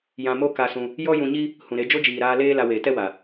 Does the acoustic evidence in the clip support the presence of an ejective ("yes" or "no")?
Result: no